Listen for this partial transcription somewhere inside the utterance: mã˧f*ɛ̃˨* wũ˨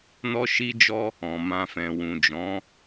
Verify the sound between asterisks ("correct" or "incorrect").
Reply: correct